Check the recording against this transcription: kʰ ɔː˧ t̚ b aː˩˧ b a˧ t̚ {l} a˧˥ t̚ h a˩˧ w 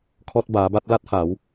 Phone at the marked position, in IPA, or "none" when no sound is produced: l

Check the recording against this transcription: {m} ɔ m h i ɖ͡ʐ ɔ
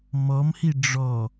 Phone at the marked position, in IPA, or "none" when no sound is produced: m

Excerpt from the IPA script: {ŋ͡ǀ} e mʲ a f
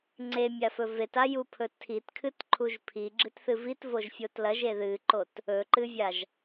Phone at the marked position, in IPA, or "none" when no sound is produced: ŋ͡ǀ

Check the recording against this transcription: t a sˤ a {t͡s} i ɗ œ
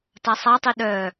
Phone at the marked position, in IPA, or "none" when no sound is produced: tˤ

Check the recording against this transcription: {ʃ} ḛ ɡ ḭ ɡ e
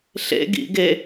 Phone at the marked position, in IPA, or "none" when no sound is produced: ɬ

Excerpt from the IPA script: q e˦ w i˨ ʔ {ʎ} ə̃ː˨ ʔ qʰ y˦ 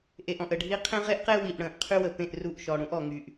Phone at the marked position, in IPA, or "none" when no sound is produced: ɽ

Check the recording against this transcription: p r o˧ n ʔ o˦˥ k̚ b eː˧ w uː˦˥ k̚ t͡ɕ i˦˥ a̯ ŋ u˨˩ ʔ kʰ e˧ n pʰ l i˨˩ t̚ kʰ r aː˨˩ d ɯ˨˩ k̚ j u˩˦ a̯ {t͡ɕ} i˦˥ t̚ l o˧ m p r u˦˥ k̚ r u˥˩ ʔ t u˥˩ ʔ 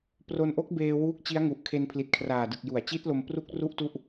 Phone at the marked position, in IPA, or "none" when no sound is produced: t͡ɕ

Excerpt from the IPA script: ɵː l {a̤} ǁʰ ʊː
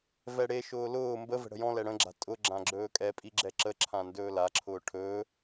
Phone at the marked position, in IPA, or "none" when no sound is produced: a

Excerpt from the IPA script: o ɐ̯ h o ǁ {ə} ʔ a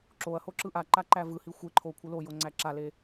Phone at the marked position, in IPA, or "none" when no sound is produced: ɯ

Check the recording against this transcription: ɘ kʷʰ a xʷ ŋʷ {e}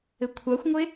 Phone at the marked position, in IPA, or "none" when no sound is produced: e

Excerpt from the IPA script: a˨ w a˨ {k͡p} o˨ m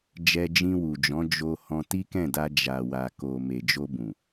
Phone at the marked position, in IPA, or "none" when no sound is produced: k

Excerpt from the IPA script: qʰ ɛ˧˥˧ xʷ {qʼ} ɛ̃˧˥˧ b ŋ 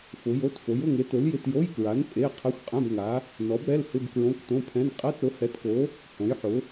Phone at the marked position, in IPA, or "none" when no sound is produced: qʼ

